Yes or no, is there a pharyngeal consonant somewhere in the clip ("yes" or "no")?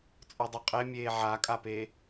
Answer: yes